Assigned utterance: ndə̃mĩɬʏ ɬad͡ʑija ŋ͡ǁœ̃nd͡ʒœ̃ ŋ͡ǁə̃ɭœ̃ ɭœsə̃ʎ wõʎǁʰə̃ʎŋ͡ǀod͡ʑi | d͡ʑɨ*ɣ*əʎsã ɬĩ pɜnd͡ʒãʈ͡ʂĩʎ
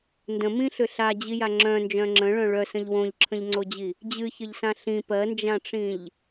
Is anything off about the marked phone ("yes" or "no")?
yes